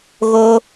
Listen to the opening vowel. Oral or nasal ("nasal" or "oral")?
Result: oral